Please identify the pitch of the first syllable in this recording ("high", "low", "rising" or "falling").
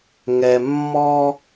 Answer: low